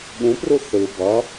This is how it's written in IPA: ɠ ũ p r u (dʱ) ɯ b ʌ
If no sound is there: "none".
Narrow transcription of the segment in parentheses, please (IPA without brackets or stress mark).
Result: θ